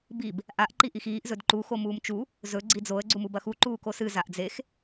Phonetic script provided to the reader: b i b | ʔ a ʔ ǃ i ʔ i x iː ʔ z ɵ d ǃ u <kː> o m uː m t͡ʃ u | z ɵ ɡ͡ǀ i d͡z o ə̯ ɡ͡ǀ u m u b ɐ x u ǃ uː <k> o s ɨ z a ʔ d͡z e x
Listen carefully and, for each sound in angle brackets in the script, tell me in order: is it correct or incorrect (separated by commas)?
incorrect, correct